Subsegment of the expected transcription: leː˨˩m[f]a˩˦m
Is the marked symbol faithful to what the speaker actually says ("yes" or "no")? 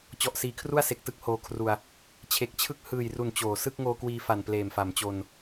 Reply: yes